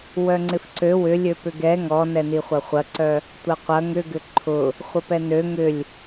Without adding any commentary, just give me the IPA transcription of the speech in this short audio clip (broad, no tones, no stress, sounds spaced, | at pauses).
w œ ŋ͡ǀ ɪ f ǀ ø w ʏ lʲ ø p ʏ ɡ ɛ ŋ ɔ n ɛ n i χʷ ɐ χʷ ɐ ǀ œ | tʷ ɐ qʷ ɐ ŋ ʏ ɡ ʏ ǃʰ ʊ | χʷ ə p ɛ n ø ŋ ʏ lʲ